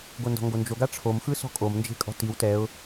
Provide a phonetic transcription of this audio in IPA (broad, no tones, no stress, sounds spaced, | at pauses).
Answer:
ɡ o n d ɔ̤ ŋ ɡ o n d͡ʒ o ɡ a ʈ͡ʂʰ o m x ɯ s ɔ̤ kʼ o m n d͡ʒ e̤ kʼ ɔ̤ t i w t ɛ ʊ̯